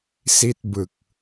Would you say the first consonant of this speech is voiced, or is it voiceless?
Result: voiceless